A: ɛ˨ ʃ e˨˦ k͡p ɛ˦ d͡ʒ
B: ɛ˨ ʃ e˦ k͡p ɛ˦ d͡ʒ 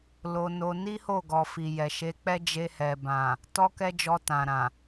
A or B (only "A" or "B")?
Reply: A